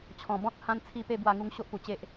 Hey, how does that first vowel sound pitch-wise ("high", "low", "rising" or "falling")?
low